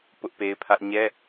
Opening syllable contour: high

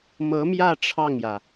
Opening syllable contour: rising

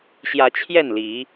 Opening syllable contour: rising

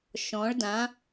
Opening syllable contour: rising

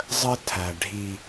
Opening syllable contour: high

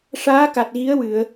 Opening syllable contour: rising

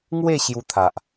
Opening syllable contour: falling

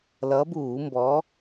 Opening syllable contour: rising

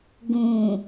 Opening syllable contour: low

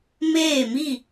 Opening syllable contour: falling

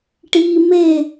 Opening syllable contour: high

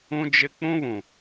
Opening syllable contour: high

